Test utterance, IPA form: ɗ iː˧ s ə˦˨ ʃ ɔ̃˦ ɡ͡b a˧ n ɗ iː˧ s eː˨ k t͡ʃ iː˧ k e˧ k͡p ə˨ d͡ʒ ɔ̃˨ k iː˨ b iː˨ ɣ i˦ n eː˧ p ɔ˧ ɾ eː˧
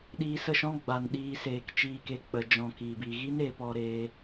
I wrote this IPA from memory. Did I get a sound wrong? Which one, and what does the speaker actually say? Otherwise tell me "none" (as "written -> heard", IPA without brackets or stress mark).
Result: none